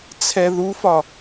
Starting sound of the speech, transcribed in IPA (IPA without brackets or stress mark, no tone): t͡sʰ